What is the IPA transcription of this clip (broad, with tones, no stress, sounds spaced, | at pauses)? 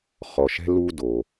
χ ɔ˩ ʃ ɛ̤˧ l u˧ d o˩